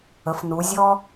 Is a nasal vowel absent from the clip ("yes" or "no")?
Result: yes